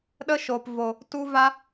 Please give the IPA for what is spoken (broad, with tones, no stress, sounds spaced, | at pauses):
ɗ ə˦ ʃ o˨ p v o˨ | t u˦ v a˦